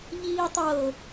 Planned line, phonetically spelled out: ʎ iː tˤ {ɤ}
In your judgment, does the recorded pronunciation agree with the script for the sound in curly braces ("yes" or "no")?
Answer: yes